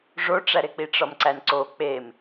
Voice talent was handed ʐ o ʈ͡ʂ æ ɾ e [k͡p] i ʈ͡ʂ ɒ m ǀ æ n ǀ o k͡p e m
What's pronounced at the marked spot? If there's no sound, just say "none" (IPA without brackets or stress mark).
k͡p